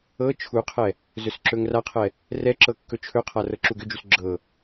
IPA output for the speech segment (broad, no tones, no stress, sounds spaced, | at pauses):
ɤ t͡ʃʰ u qʰ ɛ | z ɵ s ǁ ɵ ŋ r a qʰ ɛ | r ɛ ǁ ɤ kː ɵ t͡ʃʰ ɵ qʰ a r ɤ ǁ u ɡ ʏ d͡ʒ u s ɡ͡ǁ ɤ